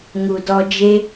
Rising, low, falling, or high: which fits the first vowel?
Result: low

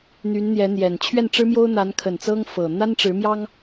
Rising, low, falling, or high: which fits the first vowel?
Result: rising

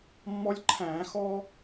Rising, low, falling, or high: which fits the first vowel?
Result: high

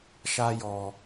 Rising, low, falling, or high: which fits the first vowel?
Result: high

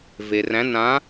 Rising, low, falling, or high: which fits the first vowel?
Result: low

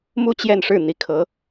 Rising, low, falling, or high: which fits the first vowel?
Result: falling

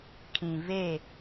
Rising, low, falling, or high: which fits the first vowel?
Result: low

